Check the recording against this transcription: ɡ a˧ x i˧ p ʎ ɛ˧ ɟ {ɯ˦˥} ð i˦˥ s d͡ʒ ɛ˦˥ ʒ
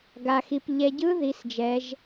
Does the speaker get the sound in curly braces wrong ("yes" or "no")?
no